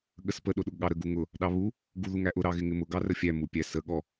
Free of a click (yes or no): yes